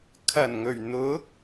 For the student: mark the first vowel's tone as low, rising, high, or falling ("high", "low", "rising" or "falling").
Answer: low